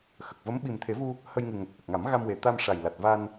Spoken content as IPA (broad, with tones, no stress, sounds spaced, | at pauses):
x ə˨˩ k̚ v ə˧˥ m ɓ i˨˩ m t̪ʰ e˨˩˦ v u˧ | h ə˧ j ŋ ɨ˨˩ ŋ ə˨˩ k̚ ʔ ə˨˩ k̚ ŋ a˨˩˦ m ɣ a˧ m w e˨˩ t̪ a˧ m ʂ a˨˩ j l a˨˩ t̚ v a˧ n